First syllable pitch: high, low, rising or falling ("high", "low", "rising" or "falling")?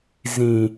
low